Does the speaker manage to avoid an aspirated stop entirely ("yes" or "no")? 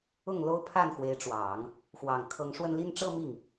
no